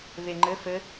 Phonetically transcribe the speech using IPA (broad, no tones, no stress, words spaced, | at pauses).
βeŋ͡ǃɘ fɘ